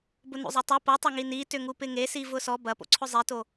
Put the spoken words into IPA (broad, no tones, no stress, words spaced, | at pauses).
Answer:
bʊnṵzˤɐtˤo pɐtˤɐŋi nitʏŋu pɪŋesi vʊsɔ bɐpo̰ǀʰʊ zˤeto